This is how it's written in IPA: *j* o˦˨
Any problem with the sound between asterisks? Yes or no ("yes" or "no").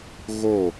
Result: yes